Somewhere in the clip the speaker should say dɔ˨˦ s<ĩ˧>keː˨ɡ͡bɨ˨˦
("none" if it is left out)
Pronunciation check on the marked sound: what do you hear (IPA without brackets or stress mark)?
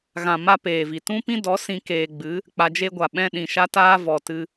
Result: ĩ˧